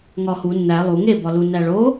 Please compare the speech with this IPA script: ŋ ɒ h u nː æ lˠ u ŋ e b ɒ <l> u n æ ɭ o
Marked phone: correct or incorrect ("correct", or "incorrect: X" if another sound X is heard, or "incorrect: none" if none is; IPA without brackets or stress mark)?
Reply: correct